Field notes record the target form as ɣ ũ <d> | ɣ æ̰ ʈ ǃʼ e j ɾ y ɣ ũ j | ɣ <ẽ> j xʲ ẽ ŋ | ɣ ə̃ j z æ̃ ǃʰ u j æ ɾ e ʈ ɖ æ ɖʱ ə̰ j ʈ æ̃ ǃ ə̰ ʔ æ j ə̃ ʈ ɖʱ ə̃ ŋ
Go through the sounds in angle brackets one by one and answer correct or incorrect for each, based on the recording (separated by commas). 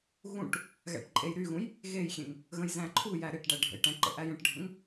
incorrect, incorrect